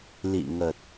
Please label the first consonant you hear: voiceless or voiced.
voiced